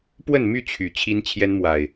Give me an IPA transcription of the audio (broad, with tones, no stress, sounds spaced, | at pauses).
p w ə˥˨ n m y˥˨ t͡ɕʰ y˨˩ t͡ɕʰ i˦ n t͡ɕʰ j ɛ˦ n m w a˨˩ ɪ̯